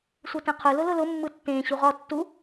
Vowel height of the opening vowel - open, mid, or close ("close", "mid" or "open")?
close